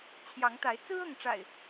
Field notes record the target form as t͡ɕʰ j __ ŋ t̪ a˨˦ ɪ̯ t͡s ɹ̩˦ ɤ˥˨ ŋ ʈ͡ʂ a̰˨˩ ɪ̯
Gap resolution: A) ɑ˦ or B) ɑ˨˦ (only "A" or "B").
B